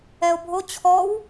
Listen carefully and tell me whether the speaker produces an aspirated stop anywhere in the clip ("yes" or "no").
yes